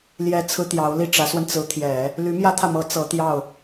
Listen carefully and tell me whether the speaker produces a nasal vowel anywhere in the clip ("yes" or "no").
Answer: no